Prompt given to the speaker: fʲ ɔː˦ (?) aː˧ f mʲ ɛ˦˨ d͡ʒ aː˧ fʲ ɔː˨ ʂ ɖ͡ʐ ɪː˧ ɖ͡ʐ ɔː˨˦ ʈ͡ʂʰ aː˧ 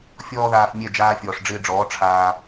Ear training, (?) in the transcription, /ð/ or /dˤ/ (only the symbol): ð